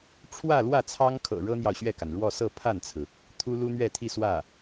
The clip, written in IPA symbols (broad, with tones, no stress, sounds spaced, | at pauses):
ʈ͡ʂʰ w ä˥˧ l w ä˥˩ t͡sʰ ɑ˥ ŋ kʰ ɤ̰˨˩ ɻ ɤ˥ n̪ j ɑ˨ ʊ̯ ɕ ɥ ɛ˥˩ k a˩ n ɻ w ɔ˥˧ s ɤ˥˧ pʰ a˥˩ n t͡sʰ ɹ̩˩ | t̪ʰ u˥ l u˥ n̪ ɥ ɛ˥˧ t̪ʰ i˥˧ s w ä˥˩